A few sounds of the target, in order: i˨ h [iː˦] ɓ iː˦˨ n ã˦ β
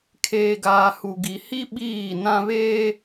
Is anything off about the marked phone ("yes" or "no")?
yes